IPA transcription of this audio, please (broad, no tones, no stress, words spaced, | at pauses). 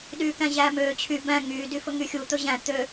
ɗyːkæ̃ʑæːmøː t͡ɕʰy bæ̃ ŋyː dyfɵŋyxʲu t̪ɵʑæ̃ t̪ø